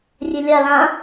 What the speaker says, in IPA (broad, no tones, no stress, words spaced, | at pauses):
rʲelʲa lã